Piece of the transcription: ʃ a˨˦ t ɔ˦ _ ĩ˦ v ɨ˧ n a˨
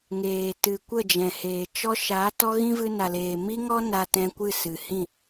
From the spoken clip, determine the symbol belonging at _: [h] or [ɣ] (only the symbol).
ɣ